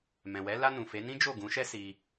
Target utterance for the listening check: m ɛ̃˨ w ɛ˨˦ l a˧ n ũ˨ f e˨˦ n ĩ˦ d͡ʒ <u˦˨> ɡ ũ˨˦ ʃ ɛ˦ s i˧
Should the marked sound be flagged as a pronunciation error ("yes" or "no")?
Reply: yes